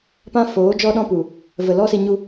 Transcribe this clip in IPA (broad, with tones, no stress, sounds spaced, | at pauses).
p ã˦ f oː˨˦ d͡ʒ ɔ˦ ɗ ɔ̃˦ p u˨ | v ə˨ l ɔ˦ s i˧ ɲ u˦